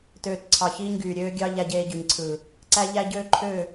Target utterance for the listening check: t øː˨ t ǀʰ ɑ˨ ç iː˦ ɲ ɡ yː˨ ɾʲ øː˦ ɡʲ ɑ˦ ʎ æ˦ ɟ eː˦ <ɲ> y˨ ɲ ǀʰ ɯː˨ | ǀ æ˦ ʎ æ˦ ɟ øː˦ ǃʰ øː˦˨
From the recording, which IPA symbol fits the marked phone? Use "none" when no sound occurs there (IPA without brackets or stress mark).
ɟ